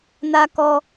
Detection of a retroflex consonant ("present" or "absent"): absent